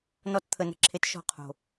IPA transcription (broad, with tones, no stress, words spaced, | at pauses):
nɔ˧tt̪ʰə˨nə̤˨ǁʰe˨t ʃɔ̤˧qʰo̤˨